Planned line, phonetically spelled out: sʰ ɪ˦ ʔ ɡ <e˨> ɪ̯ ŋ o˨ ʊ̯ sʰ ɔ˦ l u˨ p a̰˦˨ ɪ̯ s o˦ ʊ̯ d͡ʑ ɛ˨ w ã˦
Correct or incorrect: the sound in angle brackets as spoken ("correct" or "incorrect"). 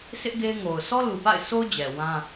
incorrect